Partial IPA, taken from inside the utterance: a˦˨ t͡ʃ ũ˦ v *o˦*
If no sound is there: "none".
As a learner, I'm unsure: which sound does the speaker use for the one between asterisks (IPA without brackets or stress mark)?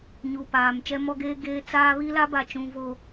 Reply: o˦